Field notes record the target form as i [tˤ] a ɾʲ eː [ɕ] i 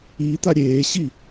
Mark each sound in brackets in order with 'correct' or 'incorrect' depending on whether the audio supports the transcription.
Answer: incorrect: t̪, correct

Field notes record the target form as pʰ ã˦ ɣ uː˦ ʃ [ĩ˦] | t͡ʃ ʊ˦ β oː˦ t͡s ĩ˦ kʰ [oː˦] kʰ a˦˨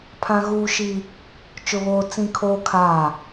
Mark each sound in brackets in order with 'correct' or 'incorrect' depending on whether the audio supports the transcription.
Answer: incorrect: i˦, correct

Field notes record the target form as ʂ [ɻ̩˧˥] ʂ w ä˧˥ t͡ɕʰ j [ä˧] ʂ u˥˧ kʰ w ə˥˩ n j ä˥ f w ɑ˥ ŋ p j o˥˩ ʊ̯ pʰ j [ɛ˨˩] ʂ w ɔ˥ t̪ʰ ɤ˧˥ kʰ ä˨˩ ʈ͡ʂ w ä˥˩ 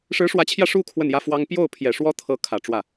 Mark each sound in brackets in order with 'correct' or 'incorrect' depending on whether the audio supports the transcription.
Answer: correct, correct, correct

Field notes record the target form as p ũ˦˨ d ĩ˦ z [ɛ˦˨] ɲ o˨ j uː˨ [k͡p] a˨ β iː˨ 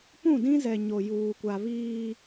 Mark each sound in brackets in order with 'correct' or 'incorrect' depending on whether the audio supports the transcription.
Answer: incorrect: ɛ˨, incorrect: kʷ

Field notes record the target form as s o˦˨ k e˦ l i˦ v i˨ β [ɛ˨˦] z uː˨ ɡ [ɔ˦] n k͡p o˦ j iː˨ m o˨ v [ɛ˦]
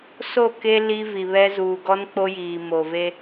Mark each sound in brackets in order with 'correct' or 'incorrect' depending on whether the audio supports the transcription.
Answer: incorrect: ɛ˦, correct, incorrect: e˦

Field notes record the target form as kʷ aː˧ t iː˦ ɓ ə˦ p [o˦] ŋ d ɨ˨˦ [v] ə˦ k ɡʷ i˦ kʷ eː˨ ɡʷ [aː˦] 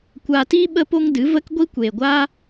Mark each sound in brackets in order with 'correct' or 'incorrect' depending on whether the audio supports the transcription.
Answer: correct, correct, correct

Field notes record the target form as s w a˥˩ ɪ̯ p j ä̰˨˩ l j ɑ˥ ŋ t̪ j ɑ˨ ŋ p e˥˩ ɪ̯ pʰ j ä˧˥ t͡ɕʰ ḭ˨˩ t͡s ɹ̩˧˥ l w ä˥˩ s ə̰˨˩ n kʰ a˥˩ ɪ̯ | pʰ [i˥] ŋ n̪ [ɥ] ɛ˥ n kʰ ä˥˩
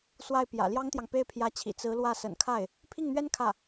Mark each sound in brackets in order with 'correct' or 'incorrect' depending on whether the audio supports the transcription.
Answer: incorrect: i˥˩, correct

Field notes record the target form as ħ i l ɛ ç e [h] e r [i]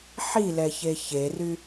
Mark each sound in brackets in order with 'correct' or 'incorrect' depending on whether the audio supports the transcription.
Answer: incorrect: ç, incorrect: y

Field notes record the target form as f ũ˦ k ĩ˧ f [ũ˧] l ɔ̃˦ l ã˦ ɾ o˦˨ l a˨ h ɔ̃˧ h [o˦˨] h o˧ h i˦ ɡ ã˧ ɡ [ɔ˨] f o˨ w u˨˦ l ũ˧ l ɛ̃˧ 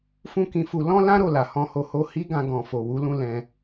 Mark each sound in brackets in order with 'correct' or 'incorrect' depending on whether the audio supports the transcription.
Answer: incorrect: u˧, incorrect: o˧, incorrect: ɔ̃˨

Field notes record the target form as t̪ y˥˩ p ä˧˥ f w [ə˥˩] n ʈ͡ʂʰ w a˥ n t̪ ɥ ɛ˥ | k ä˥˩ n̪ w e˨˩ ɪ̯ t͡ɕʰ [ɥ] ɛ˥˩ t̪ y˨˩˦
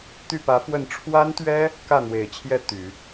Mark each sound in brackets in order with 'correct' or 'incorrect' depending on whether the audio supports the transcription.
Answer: correct, incorrect: j

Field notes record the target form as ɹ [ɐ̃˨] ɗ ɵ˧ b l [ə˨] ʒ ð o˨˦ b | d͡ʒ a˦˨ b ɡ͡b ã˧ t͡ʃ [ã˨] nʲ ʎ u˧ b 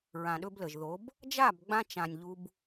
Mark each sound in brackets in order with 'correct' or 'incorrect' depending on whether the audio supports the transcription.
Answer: incorrect: ã˨, correct, correct

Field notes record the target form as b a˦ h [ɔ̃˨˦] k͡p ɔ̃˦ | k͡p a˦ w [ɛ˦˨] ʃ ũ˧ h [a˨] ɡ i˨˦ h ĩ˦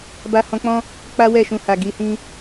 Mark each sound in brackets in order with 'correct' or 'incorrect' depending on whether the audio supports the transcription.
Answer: incorrect: ɔ̃˦, correct, correct

